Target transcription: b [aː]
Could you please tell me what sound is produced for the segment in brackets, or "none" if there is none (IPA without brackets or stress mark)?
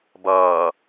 ʌː